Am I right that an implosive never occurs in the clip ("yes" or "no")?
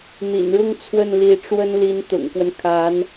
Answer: yes